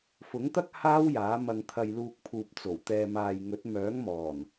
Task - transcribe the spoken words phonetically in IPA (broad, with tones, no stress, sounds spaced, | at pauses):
f ʊ˨˥ ŋ t̪ ɐ˥ k̚ h aː˥ w j aː˨˥ m ɐ˧ ŋ t̪ʰ ɐ˧ j l uː˧ k̚ pʰ uː˨ p̚ t͡s o˨˩ w t̪ ɛː˨ m aː˨ j ŋ ɵ˨˥ t̚ m œː˨˥ ŋ m ɔː˨˩ n